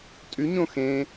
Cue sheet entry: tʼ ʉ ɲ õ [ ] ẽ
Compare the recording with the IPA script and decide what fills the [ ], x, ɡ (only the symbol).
x